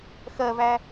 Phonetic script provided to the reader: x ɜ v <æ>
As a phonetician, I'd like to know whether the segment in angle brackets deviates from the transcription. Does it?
no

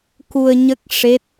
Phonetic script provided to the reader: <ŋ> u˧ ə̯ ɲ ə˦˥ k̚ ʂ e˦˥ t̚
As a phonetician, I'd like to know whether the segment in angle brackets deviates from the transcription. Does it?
yes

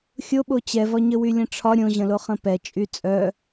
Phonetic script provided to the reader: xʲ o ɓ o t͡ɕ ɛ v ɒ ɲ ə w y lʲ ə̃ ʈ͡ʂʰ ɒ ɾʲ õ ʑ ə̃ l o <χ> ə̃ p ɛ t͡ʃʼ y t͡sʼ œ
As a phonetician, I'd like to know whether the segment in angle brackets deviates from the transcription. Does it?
no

